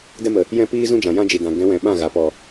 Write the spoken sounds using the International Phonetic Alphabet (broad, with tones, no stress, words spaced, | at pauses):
dɛ˧mə˨ | jɛ̃˦piː˦zũ˦d͡ʒã˨ jã˦d͡ʒi˨dã˨ ɡɛ̃˨˦wɛ̃˨ ɓã˦˨ɣa˨ pɔ˨